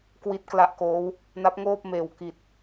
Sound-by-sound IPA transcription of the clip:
kwi˦˥t̚kla˦˥ʔkoː˦˥w | na˦˥p̚ŋoː˥˩p̚meː˨˩w ki˨˩t̚

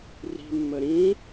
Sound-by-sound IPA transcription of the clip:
ri̤mːə ɾĩ

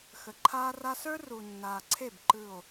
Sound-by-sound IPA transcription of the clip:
xə˨ǃʰaː˦ra˦ sə˞˦ru˨nːaː˨ǀʰe˦˨b ǃɯ˦˨o̯

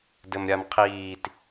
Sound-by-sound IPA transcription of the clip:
dɘmɾʲamqʰiːt

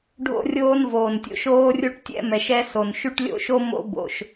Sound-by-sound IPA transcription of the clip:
ɖʱo̰˦rʲoː˦nvoː˨ntʲo̰˦ʃ oː˦rʲu˦ʈ tʲɛ̰˦mɛ˨ʃɛ˦ so˨nʃy˦ʈlʲo̰˦ʃo˦ mo̰˦bo̰˨ʃ

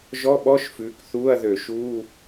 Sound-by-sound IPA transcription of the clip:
ʒɔ˧˥˧ɓɔ˧˥˧ʃfʉː˩˧k θuː˧˥˧ɐ̯ðø˧˩˧ʃuː˧˥˧

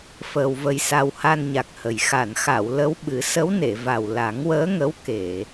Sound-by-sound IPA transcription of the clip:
fəː˧wvə˧jsa˧w ha˧nɲa˨˩k̚hə˨˩j xa˨˩˨nxa˨˩˨w lə˧˥wɓɨ˨˩˦ sə˧˥wne˨˩˨va˨˩w la˨˩˦ŋwəː˧˥ŋə˧˥w ke˨˩˨

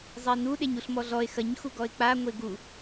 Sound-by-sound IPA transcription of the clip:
zˤenu ɗeɲuɬmɔɮɔe̯ xɐɲ xuɡɔe̯k͡pa ŋʷeɡu

